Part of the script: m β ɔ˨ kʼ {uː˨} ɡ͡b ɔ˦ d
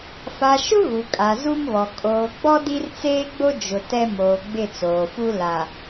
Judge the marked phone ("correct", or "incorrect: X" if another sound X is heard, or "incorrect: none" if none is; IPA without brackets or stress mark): incorrect: oː˨